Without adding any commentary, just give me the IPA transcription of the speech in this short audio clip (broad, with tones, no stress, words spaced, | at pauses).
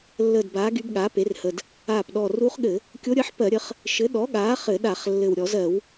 lːəː˧˩dbaː˩˥ ɡy˧˥bɠaː˩˥pe˩˥rhə˧˩d | aː˧˩pɗɔ˧˩ ruː˧˥χɠɘ˧˩˧ | kʲo˧˥ ɾʲəː˧˥ħ pɜ˧˩˧ɾʲə˩˥χ | ʃɘ˩˥ɗɔ˩˥ɠaː˩˥ χɘ˧˩˧ɗa˧˩˧χ lːɘ˧˩w ɾʲɔ˧˩˧zɜ˧˩˧w